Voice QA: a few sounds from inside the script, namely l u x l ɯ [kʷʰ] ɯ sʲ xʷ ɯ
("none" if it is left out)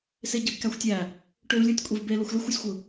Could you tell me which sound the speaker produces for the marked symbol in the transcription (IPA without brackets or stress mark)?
xʷ